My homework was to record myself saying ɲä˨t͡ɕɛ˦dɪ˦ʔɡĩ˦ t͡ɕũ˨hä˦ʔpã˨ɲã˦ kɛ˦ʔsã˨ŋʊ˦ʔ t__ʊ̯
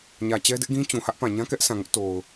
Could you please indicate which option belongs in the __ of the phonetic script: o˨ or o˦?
o˨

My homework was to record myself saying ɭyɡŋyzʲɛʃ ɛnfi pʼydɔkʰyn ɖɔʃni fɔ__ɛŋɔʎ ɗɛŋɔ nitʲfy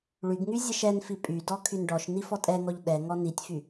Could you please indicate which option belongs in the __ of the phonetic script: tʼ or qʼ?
tʼ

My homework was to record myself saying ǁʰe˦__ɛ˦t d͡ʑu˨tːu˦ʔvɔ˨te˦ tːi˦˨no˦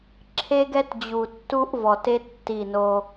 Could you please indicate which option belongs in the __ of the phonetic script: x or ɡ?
ɡ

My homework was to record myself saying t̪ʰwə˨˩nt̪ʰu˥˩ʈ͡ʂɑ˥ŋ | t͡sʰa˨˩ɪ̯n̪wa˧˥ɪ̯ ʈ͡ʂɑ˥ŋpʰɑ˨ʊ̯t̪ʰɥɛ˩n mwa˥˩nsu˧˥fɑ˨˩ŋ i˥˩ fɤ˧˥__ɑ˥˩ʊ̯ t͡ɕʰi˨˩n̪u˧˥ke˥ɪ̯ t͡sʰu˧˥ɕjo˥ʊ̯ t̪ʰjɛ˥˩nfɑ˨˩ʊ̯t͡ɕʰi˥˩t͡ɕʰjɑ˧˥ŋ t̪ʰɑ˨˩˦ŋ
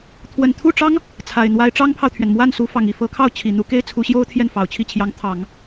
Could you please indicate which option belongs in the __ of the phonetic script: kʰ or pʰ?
kʰ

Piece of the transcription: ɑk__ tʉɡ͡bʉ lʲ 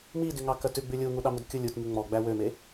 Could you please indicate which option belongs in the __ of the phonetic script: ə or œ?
œ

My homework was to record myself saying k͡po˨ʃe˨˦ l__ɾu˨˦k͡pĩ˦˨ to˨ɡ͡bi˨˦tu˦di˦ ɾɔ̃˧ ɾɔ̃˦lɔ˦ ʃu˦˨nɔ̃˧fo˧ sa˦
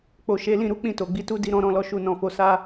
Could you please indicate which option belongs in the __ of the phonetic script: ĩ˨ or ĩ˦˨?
ĩ˦˨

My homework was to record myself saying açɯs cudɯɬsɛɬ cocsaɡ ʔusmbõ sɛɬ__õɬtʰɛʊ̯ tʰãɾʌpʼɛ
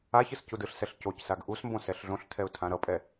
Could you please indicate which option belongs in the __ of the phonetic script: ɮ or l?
ɮ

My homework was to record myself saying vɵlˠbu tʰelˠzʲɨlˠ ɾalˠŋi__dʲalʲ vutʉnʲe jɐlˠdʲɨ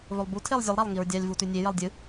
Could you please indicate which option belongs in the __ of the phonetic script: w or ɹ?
ɹ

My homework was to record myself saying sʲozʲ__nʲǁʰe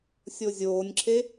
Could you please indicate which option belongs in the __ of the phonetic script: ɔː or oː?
oː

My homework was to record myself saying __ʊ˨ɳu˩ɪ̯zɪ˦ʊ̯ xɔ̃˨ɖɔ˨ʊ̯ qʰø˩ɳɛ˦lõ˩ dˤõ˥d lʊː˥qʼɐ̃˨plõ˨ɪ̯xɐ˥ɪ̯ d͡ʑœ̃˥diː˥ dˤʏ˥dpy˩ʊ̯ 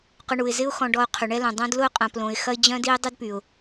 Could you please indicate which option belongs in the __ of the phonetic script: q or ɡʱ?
q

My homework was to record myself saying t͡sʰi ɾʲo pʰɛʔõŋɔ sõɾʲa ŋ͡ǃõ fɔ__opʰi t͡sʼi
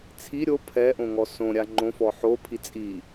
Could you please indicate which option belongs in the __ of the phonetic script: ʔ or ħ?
ħ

